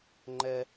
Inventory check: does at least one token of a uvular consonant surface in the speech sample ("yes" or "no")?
no